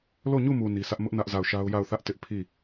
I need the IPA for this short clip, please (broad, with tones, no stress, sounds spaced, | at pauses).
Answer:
l o˦˨ ɲ u˦˨ m u˨ n i˦ s ä˦ ʔ m ʊ˦ ʔ n ä˦ ʔ z a˦˨ ʊ̯ ʃ a˦ ʊ̯ j a˦˨ ʊ̯ θ ä˦ ʔ t ɪ˦ ʔ pʰ i˦˨